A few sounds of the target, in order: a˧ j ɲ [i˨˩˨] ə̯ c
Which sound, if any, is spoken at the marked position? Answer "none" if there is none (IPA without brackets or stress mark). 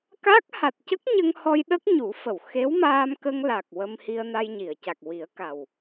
i˨˩˨